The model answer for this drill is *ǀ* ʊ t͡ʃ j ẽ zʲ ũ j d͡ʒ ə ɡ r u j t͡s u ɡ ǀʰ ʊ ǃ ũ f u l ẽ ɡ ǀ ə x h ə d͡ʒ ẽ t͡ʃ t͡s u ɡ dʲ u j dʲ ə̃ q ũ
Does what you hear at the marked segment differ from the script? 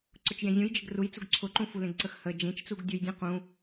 no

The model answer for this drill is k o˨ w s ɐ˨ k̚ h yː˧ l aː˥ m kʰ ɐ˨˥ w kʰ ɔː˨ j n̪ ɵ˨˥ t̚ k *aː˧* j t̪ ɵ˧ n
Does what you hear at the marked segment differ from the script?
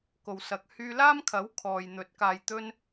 yes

